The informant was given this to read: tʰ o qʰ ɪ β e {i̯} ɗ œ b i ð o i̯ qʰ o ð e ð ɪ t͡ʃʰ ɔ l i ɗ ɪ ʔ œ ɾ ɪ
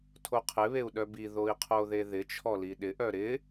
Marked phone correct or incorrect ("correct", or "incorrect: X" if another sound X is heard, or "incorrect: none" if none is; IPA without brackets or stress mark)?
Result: incorrect: u̯